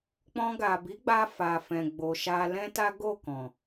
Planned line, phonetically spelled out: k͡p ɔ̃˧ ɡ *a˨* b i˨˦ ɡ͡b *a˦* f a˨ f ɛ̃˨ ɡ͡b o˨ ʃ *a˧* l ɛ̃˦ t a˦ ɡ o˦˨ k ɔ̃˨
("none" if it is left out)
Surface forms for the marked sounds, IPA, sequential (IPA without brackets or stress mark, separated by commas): a˨, a˧, a˧